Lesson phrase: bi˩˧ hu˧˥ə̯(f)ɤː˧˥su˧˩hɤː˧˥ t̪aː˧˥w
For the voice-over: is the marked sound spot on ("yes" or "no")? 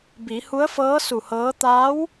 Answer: yes